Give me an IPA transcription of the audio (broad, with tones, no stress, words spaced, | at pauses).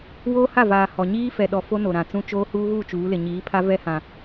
woː˦ha˦˨vaː˨ hɔ˨ ɲiː˦fɛ˨ɗɔ˨ fo˦no˨ɾã˨t͡sũ˦ t͡ʃoː˦ huː˦ɣuː˦˨ t͡ʃuː˨˦lɪ˨ ɲiː˨˦pʰa˦ vɛ˦hã˨